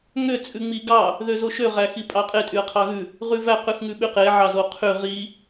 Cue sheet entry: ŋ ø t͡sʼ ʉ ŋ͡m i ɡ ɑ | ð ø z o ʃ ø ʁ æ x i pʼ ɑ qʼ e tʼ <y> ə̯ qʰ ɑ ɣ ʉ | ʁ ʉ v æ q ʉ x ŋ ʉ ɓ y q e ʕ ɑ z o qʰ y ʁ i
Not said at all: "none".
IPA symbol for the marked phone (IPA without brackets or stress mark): y